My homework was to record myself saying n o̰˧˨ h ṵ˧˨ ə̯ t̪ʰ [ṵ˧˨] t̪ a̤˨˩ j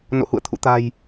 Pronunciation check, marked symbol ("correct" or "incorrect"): correct